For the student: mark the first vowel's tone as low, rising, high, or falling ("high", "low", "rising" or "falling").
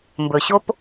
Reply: low